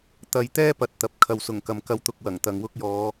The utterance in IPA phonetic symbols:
t̪ɐ˨jt̪ɛː˥ pɐ˨t̚t̪ɐ˨p̚ kʰɐ˨wsʊ˨˩ŋkɐ˨m kɐ˧wt̪ʊ˨k̚wɐ˨˩ŋt̪ɐ˨ŋ wʊ˥k̚jɔː˨˧

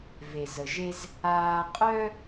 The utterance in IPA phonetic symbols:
ve˩zə˩ʒe˧z | aː˧qʼœ˥

